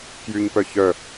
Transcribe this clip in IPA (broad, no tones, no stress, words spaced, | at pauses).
kjyɲpœ çœ